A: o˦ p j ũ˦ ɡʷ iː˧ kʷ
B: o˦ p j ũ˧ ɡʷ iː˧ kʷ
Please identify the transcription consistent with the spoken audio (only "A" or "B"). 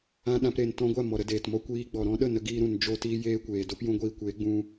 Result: B